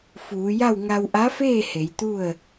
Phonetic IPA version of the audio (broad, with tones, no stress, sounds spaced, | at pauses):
f uː˩˧ j a˥˨ w ŋ a˧ w ʔ a˧˥ f eː˥˨ h e˩˧ j t̪ u˥˨ ə̯